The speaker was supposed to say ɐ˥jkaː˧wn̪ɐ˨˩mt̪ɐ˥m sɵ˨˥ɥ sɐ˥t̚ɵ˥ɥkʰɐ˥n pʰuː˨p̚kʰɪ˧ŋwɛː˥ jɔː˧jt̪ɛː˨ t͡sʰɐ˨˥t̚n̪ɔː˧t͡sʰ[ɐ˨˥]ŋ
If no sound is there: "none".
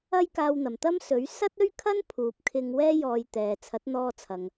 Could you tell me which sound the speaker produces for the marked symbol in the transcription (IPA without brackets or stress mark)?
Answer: ɐ˨